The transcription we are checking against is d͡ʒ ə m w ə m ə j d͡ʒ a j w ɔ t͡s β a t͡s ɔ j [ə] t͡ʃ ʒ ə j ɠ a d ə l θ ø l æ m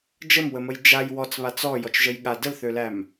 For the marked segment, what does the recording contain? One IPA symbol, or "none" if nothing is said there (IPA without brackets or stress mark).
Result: ɔ